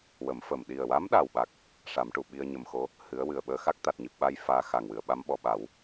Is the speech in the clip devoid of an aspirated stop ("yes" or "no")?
yes